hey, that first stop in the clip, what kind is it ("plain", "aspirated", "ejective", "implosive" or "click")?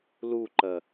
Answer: click